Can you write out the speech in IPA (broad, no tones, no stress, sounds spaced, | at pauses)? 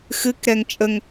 x ɨ k ɾ ɛ ŋ t͡ʃʼ ə ŋ